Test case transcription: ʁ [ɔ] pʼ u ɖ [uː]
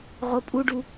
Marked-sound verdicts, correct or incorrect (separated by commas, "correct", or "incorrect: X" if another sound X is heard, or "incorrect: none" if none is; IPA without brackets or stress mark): incorrect: o, incorrect: u